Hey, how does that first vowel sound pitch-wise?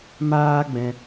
high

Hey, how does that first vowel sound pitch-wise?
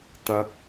rising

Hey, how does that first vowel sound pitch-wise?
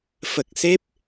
low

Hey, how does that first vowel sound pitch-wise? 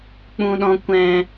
low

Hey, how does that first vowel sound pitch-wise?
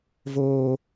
high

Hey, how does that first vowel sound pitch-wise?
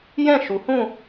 falling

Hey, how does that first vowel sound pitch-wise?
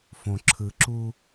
low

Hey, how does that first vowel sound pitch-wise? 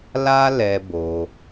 high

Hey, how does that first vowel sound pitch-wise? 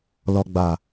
low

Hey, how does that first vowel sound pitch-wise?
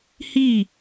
falling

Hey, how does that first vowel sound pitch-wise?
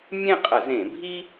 falling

